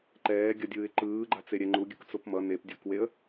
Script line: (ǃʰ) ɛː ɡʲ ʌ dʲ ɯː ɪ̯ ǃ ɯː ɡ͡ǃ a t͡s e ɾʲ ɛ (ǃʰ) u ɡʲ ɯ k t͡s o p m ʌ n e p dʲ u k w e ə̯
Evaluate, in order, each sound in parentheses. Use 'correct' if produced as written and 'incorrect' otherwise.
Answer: incorrect, incorrect

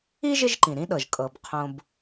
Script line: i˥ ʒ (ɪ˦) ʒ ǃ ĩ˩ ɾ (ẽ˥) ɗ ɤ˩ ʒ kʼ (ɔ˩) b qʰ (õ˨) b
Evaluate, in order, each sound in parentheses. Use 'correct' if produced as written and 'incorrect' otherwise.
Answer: correct, incorrect, incorrect, correct

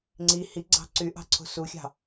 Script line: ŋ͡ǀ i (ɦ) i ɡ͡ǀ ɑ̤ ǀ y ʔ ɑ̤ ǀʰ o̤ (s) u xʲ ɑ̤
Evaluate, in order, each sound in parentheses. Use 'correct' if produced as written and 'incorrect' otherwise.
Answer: incorrect, correct

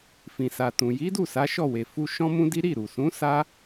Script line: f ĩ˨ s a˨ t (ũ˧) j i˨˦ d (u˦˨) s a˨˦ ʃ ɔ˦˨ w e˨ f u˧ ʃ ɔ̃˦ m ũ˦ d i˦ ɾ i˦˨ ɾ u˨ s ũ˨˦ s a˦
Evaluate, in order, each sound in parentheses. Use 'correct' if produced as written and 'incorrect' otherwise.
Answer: incorrect, correct

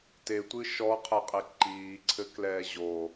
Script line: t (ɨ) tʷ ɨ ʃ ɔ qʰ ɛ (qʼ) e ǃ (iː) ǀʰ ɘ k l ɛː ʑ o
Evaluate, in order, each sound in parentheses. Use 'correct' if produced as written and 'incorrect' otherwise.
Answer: incorrect, correct, correct

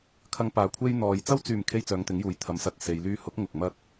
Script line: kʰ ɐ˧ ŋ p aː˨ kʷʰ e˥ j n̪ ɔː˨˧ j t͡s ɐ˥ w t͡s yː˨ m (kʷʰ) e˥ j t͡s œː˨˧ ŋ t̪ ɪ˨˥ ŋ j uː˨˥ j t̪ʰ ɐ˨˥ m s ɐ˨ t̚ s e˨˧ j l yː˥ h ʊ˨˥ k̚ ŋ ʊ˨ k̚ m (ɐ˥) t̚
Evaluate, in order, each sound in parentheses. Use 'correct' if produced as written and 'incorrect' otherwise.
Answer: incorrect, correct

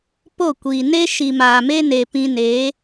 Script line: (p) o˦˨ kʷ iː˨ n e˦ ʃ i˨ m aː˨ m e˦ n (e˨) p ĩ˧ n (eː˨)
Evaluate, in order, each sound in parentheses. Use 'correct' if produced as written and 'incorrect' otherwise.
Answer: correct, correct, incorrect

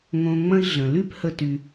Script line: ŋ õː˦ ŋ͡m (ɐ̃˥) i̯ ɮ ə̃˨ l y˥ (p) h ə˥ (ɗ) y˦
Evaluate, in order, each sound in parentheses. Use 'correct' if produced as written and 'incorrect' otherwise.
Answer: correct, correct, incorrect

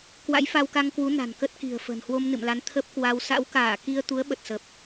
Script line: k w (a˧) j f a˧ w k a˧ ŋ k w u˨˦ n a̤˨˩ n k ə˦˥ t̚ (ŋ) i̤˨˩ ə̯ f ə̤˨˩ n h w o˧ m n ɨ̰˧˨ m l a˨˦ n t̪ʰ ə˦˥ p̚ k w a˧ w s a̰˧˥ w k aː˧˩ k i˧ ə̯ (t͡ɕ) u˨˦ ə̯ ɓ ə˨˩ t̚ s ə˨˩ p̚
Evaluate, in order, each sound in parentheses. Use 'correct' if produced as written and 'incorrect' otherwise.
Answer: incorrect, incorrect, incorrect

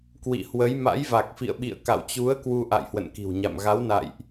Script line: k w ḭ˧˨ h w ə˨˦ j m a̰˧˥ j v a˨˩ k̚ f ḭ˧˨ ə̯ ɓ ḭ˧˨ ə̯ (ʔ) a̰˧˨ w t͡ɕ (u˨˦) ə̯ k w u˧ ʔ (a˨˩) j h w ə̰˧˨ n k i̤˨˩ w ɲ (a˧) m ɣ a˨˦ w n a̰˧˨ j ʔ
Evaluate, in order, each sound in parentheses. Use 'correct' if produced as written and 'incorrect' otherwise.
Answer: incorrect, correct, incorrect, incorrect

